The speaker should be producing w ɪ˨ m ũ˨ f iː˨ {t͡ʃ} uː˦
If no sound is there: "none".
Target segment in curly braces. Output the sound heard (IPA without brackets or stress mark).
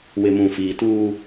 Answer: t